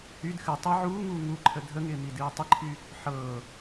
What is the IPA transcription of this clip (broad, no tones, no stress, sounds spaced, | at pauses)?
h y d x ɨ tˤ ɪ ʕ uː ŋ uː ŋ u ǃʰ ə dʱ ə ŋ ɪː m i d ɨː tˤ ɪ ǃʰ y | ħ ɤː